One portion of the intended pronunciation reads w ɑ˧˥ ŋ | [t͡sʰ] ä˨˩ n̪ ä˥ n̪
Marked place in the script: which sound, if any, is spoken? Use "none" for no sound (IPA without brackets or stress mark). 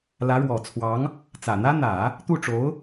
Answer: t͡s